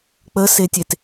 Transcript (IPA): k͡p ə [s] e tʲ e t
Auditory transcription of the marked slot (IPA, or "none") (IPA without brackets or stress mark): s